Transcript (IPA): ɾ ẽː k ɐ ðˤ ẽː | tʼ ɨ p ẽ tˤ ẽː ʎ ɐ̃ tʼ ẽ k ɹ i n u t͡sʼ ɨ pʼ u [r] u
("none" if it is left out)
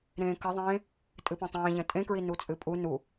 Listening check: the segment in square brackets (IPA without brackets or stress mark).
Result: n